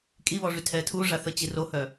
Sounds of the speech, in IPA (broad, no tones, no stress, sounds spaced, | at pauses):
kʼ i β ɔ ʐ y tʰ ɛ tʰ u ʐ a θ ə t͡ɕ i r o h œ